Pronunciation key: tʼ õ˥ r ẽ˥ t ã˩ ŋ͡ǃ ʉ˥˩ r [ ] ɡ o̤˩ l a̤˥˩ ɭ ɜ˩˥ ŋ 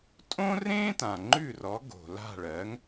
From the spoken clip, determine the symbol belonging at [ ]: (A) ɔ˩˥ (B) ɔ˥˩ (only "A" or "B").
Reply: A